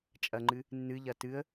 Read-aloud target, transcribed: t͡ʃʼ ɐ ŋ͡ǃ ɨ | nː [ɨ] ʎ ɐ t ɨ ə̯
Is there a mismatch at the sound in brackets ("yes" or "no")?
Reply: no